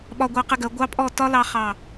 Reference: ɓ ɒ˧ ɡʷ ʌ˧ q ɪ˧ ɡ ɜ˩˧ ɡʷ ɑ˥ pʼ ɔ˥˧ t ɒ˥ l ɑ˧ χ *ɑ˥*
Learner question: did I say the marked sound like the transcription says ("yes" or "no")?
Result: no